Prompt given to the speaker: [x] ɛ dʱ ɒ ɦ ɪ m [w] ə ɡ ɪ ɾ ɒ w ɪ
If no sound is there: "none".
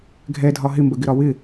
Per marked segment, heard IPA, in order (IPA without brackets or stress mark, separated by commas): ɡʱ, b